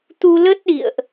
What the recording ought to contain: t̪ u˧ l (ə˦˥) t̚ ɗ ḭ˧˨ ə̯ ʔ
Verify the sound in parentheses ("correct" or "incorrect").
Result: correct